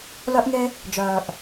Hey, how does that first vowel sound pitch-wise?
high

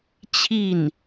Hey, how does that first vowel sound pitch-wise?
falling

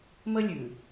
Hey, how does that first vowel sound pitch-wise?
high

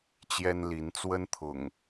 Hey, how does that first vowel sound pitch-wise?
high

